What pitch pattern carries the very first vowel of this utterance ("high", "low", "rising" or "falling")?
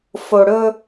low